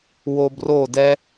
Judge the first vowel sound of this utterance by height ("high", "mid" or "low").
mid